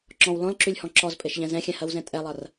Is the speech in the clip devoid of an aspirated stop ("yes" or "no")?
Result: yes